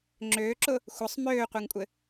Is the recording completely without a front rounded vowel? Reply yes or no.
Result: no